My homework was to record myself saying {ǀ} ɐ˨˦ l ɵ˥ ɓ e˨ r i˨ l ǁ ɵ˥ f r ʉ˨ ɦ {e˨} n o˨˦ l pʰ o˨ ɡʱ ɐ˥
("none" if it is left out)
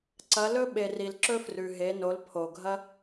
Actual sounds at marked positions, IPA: ǀ, e˨˦

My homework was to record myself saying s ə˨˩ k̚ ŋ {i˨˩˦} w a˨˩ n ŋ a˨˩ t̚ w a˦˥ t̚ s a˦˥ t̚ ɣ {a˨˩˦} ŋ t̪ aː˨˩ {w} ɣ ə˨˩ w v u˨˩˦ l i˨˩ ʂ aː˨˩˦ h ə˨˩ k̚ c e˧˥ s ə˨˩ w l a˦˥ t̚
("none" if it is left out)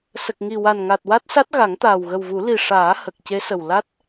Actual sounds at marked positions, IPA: i˨˩, a˨˩˦, w

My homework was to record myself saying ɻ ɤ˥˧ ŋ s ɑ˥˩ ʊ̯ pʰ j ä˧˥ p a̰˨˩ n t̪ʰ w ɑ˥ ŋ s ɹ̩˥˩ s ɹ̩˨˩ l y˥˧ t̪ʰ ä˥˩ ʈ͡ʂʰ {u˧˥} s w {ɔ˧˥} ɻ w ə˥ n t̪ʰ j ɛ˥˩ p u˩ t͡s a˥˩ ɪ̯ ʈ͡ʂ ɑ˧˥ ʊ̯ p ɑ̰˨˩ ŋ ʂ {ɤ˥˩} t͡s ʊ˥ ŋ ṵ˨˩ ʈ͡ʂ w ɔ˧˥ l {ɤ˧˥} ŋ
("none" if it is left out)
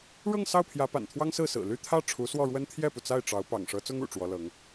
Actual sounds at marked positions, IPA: u˧˥, ɔ˥˩, ɤ˧˥, ɤ˧˥

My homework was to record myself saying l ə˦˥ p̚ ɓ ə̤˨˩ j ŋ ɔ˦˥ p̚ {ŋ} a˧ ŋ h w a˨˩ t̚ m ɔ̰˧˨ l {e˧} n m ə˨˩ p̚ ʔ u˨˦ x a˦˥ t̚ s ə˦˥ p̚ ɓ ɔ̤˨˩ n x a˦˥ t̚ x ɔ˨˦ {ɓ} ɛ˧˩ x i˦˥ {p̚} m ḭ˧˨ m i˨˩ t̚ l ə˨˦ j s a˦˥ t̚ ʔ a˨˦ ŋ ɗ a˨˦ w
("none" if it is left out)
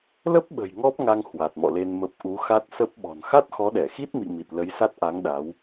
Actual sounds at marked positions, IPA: ŋ, e˧, ɗ, t̚

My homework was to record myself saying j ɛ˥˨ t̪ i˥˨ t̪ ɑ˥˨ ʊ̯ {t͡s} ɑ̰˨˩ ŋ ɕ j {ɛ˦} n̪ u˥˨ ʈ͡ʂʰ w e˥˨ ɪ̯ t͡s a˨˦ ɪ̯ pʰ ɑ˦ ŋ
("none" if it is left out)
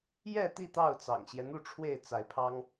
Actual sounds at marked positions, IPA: t͡s, ɛ˦

